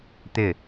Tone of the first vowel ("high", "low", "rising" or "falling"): falling